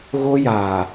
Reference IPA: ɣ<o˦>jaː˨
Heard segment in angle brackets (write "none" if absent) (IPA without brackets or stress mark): o˦